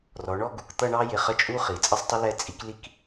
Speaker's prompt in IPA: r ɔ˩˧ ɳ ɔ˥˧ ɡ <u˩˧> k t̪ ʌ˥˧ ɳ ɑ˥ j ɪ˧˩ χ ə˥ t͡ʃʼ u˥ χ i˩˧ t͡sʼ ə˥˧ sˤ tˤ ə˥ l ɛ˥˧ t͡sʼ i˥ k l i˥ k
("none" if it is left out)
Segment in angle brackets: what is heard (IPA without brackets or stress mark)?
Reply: u˩˧